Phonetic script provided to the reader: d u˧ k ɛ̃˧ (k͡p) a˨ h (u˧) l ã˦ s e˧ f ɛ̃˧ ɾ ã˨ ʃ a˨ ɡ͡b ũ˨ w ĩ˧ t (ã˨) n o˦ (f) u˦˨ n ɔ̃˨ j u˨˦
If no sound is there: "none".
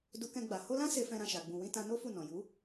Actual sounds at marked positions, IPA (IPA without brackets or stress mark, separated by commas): ɡ͡b, o˧, ã˧, f